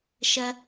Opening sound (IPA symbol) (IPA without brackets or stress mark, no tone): ʃ